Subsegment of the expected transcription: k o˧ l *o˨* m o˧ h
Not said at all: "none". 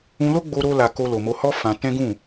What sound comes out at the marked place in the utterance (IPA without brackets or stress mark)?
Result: o˨